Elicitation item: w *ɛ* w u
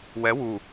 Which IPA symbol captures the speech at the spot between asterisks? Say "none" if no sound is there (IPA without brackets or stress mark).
ɛ